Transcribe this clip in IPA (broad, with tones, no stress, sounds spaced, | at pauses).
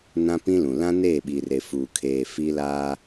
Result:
n ã˦ p ĩ˦ l ũ˨ l ã˦ n eː˦˨ ɓ i˨ r e˨ f uː˨ kʰ eː˨ f i˦ l aː˦